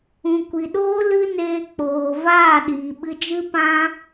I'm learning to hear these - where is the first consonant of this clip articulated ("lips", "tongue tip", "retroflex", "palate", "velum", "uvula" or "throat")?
velum